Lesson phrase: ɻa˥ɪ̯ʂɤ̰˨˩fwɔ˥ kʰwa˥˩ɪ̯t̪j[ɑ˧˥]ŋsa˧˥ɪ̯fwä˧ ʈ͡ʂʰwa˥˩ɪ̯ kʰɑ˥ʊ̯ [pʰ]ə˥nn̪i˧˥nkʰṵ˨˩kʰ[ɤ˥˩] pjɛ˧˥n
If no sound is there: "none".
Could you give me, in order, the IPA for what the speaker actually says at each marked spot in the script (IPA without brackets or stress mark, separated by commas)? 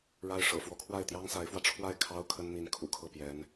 ɑ˥, kʰ, ɤ˥˩